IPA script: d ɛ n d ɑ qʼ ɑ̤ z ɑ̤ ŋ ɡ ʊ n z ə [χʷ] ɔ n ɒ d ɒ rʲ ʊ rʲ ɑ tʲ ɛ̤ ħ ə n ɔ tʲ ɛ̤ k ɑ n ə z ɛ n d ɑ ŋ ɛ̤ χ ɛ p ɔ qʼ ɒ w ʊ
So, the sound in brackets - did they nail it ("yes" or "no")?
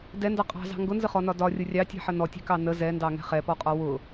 no